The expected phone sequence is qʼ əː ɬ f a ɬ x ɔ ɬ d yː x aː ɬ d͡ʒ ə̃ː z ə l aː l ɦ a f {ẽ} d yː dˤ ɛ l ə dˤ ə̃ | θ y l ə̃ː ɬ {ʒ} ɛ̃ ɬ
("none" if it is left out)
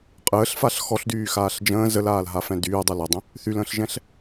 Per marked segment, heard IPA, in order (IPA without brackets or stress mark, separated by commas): ɛ̃, ʒ